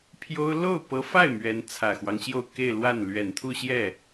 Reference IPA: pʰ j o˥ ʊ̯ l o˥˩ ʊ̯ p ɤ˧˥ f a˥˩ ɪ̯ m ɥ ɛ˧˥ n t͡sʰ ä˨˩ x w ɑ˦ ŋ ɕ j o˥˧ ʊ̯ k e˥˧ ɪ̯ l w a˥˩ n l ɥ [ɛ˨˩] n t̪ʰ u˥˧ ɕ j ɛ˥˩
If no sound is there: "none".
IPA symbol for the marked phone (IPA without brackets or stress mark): ɛ˨˩